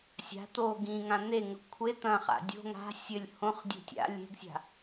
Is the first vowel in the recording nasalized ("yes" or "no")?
no